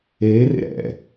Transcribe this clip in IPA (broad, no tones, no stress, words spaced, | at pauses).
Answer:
eːrḛ ɾɛ̰